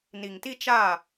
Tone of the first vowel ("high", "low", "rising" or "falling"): low